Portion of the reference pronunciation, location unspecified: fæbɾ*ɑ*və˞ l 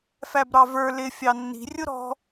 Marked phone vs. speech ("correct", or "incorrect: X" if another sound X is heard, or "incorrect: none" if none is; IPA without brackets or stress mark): correct